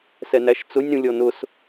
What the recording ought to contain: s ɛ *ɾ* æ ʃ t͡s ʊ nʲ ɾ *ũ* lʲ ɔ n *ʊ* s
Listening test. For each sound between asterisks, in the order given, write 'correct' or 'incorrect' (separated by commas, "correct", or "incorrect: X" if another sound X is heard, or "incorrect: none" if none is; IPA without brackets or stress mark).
incorrect: n, correct, correct